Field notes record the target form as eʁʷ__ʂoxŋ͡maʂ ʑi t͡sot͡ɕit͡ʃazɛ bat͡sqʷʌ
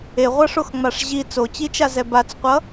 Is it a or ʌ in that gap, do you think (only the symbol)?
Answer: ʌ